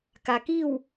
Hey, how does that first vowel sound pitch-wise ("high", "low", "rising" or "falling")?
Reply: low